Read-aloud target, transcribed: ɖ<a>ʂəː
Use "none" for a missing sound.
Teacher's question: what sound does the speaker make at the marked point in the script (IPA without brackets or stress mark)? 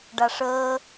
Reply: a